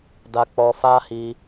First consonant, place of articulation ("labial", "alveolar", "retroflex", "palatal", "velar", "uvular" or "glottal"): alveolar